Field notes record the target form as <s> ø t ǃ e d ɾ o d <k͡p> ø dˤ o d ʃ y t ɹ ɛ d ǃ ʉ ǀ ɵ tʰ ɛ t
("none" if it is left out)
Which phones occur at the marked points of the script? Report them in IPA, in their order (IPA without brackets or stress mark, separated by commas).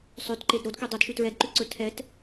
sˤ, k